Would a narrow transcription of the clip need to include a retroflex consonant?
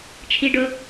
yes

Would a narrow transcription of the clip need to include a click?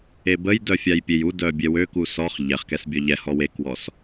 no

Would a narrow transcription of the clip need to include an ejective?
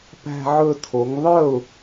no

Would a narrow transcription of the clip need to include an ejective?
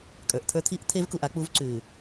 yes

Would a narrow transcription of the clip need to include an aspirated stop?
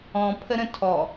yes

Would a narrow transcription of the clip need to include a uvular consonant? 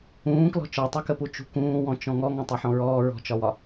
no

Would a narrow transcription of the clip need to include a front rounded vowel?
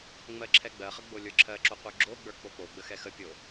no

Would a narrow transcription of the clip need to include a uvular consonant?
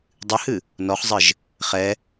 yes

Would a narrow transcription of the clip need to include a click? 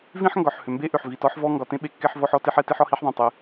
no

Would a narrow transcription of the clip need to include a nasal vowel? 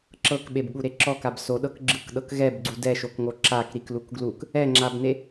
no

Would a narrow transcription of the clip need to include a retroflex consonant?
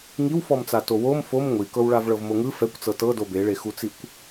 yes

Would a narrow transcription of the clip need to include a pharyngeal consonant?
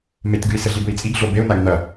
no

